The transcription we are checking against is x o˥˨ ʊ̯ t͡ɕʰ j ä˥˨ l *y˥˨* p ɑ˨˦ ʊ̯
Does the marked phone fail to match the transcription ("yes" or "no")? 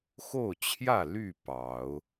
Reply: no